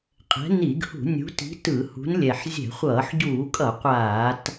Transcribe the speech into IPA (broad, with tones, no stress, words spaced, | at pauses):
qʼɛ̤˨˦ni˧˩˧ɡhṳ˧˩˧ nʲṳ˨˦ti̤˨˦ tɯ˧˩˧hṳ˨˦nlʲɛ˨˩ħ zʲɛ̤˧˩˧χʷʌː˧˩˧ħɟuː˧˩˧kʼʌ˧˩˧ qʷaː˧˩˧t